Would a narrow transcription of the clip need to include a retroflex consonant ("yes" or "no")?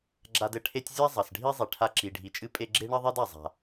yes